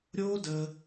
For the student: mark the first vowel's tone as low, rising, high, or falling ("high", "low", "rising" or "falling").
high